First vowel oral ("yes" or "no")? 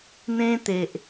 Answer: no